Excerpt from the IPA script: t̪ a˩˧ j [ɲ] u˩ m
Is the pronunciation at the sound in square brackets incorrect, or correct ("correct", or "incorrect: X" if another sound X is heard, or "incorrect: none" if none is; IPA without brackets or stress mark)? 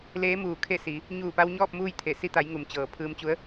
incorrect: ŋ